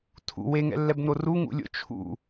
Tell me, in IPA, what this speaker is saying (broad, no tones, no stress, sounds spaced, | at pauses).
tʰ ṵ w e ŋ ɛ̰ lː ɛ b n o r u ŋ ṵ lʲ o̰ t͡ʃʰ ṵ